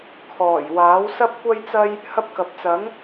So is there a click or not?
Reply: no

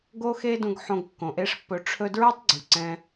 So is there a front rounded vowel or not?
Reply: yes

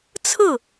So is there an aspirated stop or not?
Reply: yes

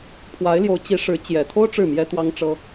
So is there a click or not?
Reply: no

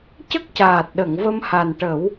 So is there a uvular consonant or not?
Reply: no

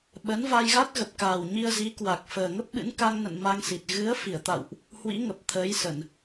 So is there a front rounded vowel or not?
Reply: no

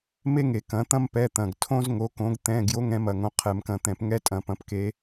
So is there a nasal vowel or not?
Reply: yes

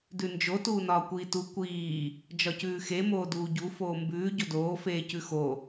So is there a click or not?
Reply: no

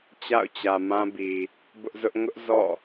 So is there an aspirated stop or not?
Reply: no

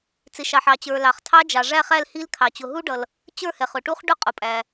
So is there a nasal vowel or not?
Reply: no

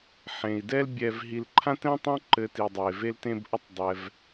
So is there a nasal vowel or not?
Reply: yes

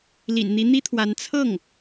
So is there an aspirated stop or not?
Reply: yes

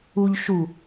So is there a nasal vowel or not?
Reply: no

